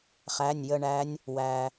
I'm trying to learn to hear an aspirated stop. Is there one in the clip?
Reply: no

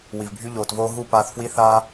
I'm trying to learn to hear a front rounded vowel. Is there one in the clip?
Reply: yes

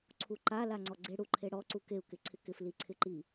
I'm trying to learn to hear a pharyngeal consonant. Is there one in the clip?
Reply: no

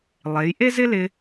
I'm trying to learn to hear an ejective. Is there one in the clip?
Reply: no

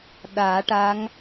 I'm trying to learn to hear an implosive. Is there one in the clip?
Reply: yes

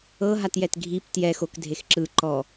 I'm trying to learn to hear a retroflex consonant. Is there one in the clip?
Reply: no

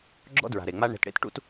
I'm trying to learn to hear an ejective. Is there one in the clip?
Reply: no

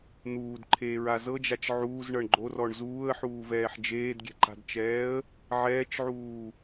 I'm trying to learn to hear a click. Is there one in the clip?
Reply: yes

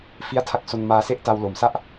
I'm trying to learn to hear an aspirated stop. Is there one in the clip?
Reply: yes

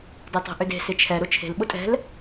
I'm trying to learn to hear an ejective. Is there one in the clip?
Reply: yes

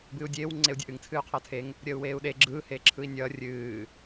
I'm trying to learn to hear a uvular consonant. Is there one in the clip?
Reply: yes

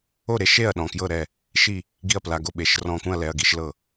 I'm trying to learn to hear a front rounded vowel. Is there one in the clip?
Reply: no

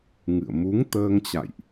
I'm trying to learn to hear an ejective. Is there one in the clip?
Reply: no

